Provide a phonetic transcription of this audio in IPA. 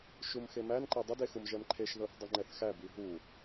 ʃ u m x e m æ n ǃ e dˤ ə d e x u m ʒ ɛ m ǃʰ e ʃ ð ɤ θ dˤ ɵ ŋ͡ǃ ɛ θ x æ b i ɦ u

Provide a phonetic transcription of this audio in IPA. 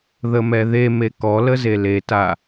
ð ə m ɛ ð e m e k ɔ l ə z e l e t a

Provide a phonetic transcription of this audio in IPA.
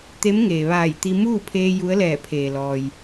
t̪ e˧˥ m ŋ eː˩ ʋ aː˧˩ j t̪ i˧ m uː˥˨ pʰ eː˧ j u˧˥ ə̯ l ɛː˧˩ pʰ eː˩ l ɔː˩ j

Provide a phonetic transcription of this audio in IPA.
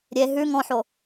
ɾʲ e ɦ ʉ ŋ ɔ̃ ħ o

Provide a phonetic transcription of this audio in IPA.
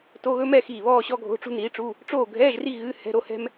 t o˧˥˧ ɣ ɵ˥ m ɛ˥˧ x iː˧˩ β ɔː˥˧ ɕ ɔ˥ ɡʱ o̤˧˥˧ ʈ͡ʂ ṳ˥ n iː˨˥ ʈ͡ʂ u˧˥˧ | ʈ͡ʂ oː˥˧ ɡʱ ɛː˧˥˧ ʒ r i˥˧ ɣ ɨ˧˥˧ h ɛ̤˧˥˧ ɾ o˧˥˧ h ɛ̤˥ m

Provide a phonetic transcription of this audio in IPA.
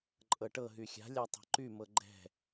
ǃʼ ɤ ʈ ɤ ɦ y xʲ a̤ lʲ a tˤ ɛ̤ ǃ y m ɤ ɡ͡ǃ ɛ̤

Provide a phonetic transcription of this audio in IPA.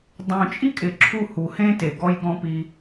dˤ ũ˨ t͡ʃʼ i˦ kʼ ɪ˨ ǁʰ u˦˨ h u˨ h ẽ˦ t e˨ ɡ ɔ˦ j ɡ ɔ̃˦ p i˧

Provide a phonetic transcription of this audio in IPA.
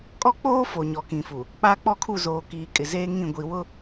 kʼ ɔ˦ k͡p oː˦ f o˨ ɲ ɔ˨ k ĩ˨ f u˨ | k͡p aː˦ k͡p ɔ˦ kʰ u˦˨ z oː˨ k iː˨ kʼ ɪ˨ z eː˦ ŋ ĩ˦˨ ɡʷ i˨ w ʊ˦

